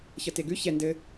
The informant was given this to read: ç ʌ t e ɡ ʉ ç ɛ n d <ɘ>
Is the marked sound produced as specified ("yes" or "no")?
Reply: yes